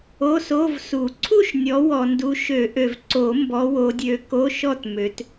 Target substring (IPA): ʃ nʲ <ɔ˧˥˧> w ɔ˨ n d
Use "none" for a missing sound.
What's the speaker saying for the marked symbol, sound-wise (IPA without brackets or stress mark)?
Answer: ɔ˨˦